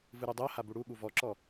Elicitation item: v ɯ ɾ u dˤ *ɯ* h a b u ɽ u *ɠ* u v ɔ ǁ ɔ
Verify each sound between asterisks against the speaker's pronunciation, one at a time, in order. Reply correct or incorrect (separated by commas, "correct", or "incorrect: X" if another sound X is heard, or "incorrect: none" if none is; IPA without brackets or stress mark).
incorrect: ɤ, correct